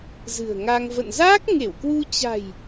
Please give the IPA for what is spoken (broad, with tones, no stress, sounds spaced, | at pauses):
z ɨ̤˨˩ ə̯ ŋ a˧ ŋ v ə̰˧˨ n z aː˦˥ k̚ ŋ e˧˩ w k w u˧ t͡ɕ a̤˨˩ j